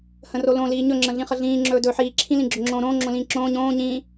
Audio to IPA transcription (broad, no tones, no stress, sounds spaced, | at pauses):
h ə̃ r o l õ l iː ɲ ɵ ŋ͡ǁ ə̃ ɮ ĩ χ ə ɮ ĩː ŋ͡ǁ ɵː d ɵː ħ iː ǁʰ ĩ l ĩ ɡ͡ǁ ɵ ŋ͡ǁ õː ɾ õː ŋ͡ǁ õ l ĩː ǁ õː ɲ õː ɲ ĩː